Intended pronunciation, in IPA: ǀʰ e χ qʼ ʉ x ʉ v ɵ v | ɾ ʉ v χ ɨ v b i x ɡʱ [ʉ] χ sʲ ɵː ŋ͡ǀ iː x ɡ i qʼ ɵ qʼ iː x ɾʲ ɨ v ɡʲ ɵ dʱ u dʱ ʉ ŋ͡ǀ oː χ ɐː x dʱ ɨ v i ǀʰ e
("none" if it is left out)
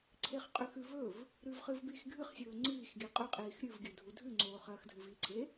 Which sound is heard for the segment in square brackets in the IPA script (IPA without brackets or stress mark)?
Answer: ɨ